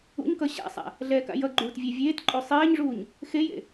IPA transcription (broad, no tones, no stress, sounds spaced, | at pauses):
ṵ ɲ k ʌ ɕ a̰ sˤ a̰ | ɮ ɛː k a̰ j ʌ ɡ͡ǃ uː t vʲ ɛ vʲ eː t ǃʼ o sˤ eː ɲ ʐ uː ɲ | x e j ḛ